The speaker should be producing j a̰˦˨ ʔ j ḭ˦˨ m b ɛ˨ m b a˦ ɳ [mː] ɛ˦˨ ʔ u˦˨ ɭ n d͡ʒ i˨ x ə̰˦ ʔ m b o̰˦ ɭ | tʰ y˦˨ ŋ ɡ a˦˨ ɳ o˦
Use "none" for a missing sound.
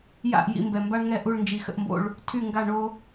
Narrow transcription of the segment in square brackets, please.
ŋ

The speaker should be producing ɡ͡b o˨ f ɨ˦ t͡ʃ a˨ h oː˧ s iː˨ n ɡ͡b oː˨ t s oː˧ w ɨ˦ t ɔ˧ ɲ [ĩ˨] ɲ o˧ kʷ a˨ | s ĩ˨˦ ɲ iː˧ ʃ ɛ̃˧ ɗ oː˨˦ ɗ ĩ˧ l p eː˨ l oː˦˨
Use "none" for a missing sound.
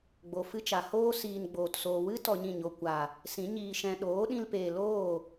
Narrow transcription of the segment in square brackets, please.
ĩ˦˨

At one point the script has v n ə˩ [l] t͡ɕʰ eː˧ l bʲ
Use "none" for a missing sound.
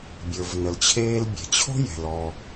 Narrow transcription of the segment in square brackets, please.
l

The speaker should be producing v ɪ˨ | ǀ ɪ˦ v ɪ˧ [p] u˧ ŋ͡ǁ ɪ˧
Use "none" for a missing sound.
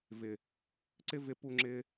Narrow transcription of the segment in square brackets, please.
p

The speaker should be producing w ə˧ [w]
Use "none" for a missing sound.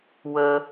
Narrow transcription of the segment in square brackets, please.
none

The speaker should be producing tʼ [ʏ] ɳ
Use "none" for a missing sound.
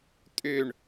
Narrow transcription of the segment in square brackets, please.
ʏ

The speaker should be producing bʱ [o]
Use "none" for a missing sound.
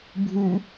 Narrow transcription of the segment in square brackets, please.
u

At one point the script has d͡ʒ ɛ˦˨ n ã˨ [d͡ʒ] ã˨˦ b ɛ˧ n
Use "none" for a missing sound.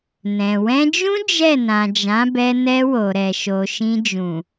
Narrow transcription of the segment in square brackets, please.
d͡ʒ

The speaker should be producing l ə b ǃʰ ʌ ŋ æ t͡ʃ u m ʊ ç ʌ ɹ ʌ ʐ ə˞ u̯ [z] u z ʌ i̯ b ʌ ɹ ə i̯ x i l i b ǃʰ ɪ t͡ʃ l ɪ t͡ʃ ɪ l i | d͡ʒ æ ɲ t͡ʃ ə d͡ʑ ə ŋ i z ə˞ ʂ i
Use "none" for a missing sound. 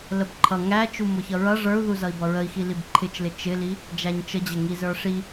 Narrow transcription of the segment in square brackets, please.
ð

